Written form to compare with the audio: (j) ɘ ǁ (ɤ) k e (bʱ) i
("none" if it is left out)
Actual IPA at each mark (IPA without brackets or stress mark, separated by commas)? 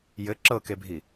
j, ɤ, bʱ